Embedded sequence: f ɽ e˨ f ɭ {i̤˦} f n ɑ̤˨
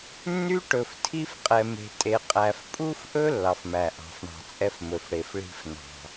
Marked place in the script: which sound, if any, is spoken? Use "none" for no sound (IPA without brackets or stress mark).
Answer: i̤˦